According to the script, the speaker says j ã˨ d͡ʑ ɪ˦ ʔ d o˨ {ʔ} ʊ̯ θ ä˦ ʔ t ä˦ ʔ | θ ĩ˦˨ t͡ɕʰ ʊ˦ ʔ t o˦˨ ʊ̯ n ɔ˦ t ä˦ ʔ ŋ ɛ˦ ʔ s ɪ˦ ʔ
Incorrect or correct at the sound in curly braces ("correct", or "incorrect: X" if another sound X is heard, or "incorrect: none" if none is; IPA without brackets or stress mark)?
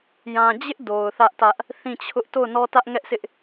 incorrect: none